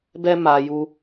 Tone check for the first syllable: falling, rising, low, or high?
high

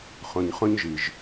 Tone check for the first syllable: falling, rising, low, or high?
low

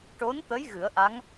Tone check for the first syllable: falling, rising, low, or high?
rising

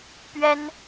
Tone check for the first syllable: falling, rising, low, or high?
high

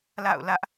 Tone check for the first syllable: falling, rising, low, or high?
falling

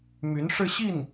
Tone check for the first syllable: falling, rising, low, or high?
rising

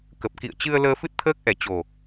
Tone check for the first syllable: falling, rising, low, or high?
low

